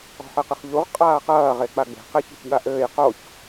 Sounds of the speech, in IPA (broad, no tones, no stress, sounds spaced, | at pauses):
ɔ̤ ħ ɘ q ɨ χ ʎ u ʁ qʼ aː q ɐː ʁ e k͡p a ɡ͡b e̤ q e ç e̤ ç ɠ a ʔ ɘː j q o ç